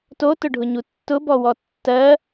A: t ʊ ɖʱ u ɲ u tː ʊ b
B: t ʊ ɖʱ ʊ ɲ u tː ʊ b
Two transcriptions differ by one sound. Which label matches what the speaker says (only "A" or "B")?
B